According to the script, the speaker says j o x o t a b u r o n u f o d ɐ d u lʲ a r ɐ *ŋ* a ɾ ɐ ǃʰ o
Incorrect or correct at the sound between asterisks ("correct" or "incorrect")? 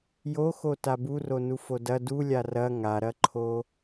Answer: correct